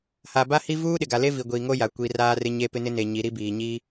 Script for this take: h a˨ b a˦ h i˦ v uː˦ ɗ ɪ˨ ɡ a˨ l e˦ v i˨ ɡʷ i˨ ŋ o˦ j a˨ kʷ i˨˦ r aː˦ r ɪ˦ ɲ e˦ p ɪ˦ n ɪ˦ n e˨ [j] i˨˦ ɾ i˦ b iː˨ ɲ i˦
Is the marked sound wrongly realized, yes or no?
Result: yes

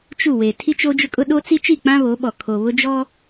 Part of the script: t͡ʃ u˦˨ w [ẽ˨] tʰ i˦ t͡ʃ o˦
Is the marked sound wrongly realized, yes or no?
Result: yes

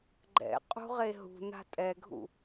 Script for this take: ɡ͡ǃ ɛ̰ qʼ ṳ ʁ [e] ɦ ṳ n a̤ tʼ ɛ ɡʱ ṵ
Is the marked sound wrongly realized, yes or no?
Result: no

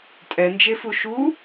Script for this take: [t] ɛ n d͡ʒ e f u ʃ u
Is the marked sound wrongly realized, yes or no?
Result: yes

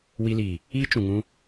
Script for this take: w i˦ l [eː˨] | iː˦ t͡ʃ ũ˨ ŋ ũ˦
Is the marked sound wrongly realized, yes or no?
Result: yes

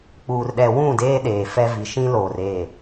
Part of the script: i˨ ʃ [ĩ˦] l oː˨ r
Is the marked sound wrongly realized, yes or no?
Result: no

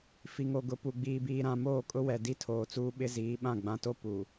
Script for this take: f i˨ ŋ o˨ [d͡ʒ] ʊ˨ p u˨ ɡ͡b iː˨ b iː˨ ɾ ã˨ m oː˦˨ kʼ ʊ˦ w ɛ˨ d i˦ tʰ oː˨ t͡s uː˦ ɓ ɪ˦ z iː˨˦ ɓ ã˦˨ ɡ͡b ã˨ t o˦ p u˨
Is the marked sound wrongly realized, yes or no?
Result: yes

